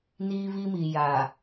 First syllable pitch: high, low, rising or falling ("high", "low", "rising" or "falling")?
high